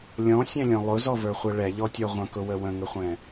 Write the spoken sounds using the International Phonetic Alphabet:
lʲɔ̃sʲɛ̃lʲɔ̃ lˠʊzɔvə˞χʷɛ ɭɛʎɔtʲɔ ʁʷə̃kʊwə wə̃ŋəχʷɛ̃

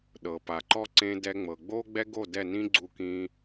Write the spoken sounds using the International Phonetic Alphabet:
ɗɤ˩pa˩ǃɔ˥ ǀẽ˧dɛ˧ŋ͡mɤ˩ ɡ͡boː˥ɡ͡bɛ˥ɡo˥˩ dɛ˥˩nĩ˥ɡ͡ǀu˧kĩː˧

